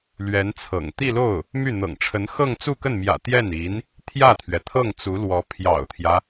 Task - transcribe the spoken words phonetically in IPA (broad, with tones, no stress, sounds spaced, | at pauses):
l ɥ ɛ˧˥ n t͡sʰ ɤ̰˨˩ ŋ t̪ i˥˧ l o˥˩ ʊ̯ | m y˥˩ n̪ ɤ̰˨˩ ŋ ʈ͡ʂʰ ə˧˥ n x ɤ˥˧ ŋ t͡s u˥˧ k ə˥˩ n m j ä̰˨˩ t̪ j ɛ˥˩ n i˧˥ n | t̪ʰ j ä˥˩ t̪ʰ ɥ ɛ˩ t̪ʰ ɤ˥˩ ŋ t͡s u˧˥ l w ɔ˧˥ pʰ j ɑ̰˨˩ ʊ̯ t̪ʰ j ä˦